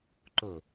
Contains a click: yes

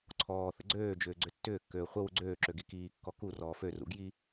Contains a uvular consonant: yes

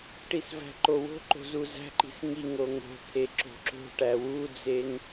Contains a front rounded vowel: no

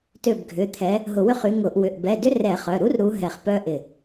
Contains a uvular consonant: yes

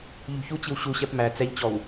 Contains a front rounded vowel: no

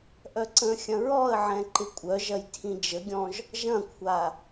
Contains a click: yes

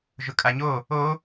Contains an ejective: yes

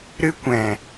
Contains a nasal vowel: yes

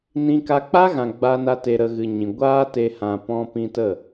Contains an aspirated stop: no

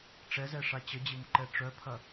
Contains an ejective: no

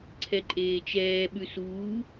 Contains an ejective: yes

